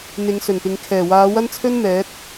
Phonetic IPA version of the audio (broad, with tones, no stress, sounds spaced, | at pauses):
n̪ ɪ˨˧ ŋ s ɵ˨˩ n p ɪ˨ ŋ kʰ ɛː˨˩ w aː˨˧ w ɐ˥ n t͡sʰ ɵ˥ n m ɛː˨˥ t̚